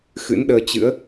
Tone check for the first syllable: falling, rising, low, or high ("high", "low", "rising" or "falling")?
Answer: rising